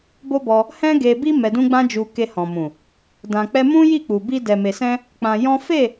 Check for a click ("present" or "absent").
absent